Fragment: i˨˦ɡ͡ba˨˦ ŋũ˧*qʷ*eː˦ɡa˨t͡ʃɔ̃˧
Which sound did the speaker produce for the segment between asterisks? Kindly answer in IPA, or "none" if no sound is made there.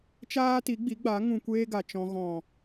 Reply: kʷ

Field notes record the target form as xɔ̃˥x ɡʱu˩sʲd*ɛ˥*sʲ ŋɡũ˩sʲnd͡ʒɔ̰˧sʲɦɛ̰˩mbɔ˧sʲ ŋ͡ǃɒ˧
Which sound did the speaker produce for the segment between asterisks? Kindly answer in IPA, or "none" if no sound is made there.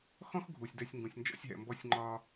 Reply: ɛ˧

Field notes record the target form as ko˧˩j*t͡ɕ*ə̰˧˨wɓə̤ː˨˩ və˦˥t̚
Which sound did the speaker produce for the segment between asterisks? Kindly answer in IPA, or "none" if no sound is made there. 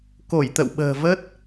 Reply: t̪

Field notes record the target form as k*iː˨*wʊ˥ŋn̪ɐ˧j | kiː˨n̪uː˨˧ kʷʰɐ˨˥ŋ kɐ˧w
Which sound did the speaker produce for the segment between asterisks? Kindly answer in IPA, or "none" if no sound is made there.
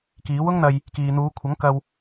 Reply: iː˨˥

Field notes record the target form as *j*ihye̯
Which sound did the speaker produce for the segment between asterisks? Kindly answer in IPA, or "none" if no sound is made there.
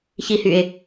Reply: ç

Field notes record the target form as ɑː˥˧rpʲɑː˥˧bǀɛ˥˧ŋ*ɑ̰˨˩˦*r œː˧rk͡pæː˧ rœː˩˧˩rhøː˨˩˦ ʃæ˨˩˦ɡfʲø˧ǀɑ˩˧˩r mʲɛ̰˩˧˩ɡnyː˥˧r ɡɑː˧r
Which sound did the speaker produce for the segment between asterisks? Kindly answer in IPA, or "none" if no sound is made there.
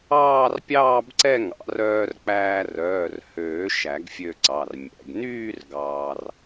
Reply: ɑ̰˨˩˦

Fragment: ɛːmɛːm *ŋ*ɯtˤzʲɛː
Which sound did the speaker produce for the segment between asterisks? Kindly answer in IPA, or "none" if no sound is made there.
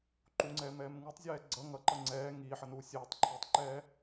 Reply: ŋ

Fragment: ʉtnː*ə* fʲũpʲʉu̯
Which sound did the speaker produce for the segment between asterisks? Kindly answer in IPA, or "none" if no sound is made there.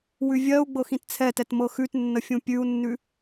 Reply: ə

